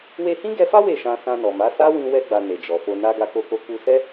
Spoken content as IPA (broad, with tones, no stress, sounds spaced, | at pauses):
w e˧ h ĩ˦ ɡ ɛ˧ f a˦ w e˦˨ ʃ ã˧ s ã˧ n ɔ˨ m a˨˦ s a˦ w ĩ˧ w ɛ˧ ɡ͡b a˨ n e˨ d͡ʒ ɔ˨ f o˧ n a˦ ɡ a˧ k o˧ k o˧ k u˧ s ɛ˦